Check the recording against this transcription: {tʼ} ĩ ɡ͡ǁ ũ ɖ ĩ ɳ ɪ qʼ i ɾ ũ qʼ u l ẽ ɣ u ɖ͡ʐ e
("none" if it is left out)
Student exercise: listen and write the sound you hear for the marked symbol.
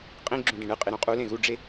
qʼ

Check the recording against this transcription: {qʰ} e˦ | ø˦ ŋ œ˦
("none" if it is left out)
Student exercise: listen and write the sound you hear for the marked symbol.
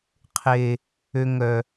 qʰ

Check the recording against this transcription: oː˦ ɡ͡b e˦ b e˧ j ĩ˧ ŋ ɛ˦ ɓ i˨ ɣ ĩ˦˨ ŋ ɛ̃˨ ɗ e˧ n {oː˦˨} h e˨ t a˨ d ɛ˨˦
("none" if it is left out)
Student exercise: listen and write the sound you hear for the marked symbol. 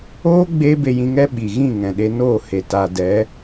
oː˦˨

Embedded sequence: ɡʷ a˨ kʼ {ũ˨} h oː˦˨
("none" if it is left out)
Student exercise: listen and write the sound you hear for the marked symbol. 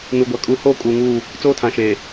u˨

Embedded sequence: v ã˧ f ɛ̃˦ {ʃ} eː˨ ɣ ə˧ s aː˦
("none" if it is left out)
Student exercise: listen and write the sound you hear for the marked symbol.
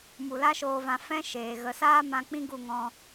ʃ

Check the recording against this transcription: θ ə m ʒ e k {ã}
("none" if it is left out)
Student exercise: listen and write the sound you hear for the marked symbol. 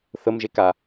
a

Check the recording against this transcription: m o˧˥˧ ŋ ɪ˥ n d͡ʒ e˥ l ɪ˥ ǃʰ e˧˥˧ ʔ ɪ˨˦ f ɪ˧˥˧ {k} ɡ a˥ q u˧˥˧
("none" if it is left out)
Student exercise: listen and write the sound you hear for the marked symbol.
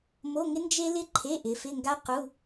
ŋ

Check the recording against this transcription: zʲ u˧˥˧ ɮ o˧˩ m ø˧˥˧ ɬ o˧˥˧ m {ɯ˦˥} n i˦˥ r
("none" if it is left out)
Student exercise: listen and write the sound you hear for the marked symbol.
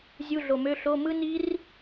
ɯ˦˥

